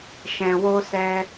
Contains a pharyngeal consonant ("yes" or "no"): no